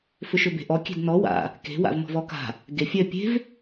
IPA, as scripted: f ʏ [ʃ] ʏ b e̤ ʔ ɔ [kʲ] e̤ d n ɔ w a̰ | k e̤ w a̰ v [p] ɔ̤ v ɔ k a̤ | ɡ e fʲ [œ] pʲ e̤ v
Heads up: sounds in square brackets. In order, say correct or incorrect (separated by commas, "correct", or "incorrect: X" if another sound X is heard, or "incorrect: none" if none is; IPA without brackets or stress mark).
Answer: correct, correct, incorrect: m, correct